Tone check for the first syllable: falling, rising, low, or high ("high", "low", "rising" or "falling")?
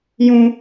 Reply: high